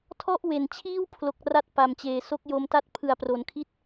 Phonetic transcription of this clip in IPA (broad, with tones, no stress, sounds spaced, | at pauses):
tʰ ɔ˥˩ ʔ w e˨˩ n t͡ɕʰ iː˥˩ w pʰ l o˨˩ k̚ r a˥˩ t̚ p a˩˦ m t͡ɕ eː˩˦ s o˦˥ k̚ j o˧ m t a˥˩ t̚ pʰ ɯ˨˩ a̯ p r o˩˦ n kʰ i˥˩ t̚